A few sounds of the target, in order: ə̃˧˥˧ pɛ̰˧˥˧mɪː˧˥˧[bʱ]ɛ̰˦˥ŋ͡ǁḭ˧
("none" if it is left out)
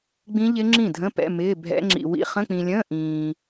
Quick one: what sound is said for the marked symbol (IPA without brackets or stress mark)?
bʱ